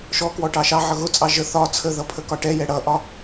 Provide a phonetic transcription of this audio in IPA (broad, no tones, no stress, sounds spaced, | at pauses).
ʃ ɔ k w ɔ ʈ ɑ ʃ ɑ ʕ ʌ ɣ ʊ t͡sʼ ɑ ʒ ə θ ɒ t͡sʰ ə ð ʌ pʰ ə k ɒ ʈ ɛ j ɛ ɽ ʌ ʔ ɒ